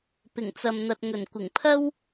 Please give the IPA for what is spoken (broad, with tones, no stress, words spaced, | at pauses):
pɪ˨˩ŋt͡sɐ˨mn̪ɐ˨t̚ ŋɵ˨˩nkʷɪ˨˩ŋpʰɐ˥w